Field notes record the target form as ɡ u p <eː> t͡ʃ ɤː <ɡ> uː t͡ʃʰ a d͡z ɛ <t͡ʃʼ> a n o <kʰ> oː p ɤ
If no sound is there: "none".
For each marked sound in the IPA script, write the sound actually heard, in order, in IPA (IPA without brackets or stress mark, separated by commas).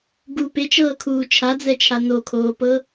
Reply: e, kʰ, t͡ʃʰ, kʰ